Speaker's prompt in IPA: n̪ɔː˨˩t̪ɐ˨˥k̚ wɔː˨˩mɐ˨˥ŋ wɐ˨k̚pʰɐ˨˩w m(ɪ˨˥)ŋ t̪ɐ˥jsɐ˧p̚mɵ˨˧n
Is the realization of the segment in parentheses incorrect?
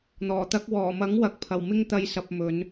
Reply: yes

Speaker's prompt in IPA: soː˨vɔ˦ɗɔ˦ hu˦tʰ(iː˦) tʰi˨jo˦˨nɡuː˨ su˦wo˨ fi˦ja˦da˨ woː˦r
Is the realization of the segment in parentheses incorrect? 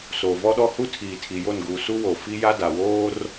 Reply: yes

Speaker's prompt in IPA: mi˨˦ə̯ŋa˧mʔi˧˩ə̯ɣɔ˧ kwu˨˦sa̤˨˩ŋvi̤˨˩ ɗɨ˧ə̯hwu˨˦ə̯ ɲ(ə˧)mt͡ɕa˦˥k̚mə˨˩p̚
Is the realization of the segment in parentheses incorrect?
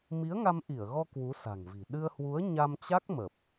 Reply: yes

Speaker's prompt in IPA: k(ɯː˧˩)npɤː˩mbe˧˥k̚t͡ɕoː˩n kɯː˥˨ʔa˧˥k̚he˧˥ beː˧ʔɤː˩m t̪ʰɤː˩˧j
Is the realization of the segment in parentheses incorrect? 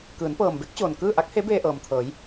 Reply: yes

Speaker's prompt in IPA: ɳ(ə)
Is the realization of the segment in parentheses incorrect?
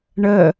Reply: no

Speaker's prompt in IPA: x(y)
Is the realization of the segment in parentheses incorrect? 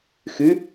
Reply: no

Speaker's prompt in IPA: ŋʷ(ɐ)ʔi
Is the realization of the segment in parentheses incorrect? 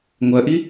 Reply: no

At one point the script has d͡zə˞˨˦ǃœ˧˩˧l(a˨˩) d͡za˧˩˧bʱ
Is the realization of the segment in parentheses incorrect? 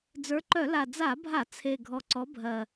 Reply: no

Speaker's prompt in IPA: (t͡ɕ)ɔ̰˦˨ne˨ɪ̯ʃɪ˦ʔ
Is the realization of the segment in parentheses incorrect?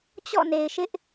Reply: no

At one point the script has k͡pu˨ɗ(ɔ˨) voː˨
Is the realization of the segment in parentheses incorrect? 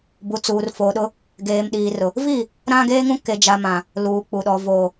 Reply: no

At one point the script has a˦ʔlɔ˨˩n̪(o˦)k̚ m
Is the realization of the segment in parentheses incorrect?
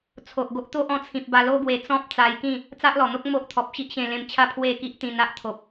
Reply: no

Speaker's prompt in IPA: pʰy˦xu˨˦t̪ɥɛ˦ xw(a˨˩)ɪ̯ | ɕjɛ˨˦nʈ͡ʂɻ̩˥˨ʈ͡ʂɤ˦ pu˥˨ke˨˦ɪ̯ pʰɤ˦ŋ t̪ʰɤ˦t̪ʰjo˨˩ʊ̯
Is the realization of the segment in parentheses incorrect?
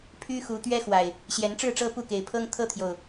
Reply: no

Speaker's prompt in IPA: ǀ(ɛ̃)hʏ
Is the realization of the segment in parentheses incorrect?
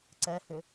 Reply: yes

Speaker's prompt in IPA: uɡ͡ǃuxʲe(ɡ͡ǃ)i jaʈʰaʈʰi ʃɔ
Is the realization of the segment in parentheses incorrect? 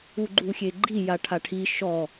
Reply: no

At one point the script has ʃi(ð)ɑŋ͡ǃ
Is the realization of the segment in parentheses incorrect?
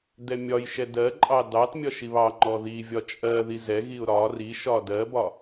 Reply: yes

